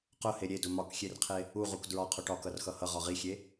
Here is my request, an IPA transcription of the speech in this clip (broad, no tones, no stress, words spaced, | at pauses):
qʊhe ɾʲedʊ mɒkxʲerqʰe | uʁuk dɹɒqʰʊ ʈɒkʌrxʌ hʌʁɒ ʁixʲe